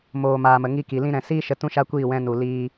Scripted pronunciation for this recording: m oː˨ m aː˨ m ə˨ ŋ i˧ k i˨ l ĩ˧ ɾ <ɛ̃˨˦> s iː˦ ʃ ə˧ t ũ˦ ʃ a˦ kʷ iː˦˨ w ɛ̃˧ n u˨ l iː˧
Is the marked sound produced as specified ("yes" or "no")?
no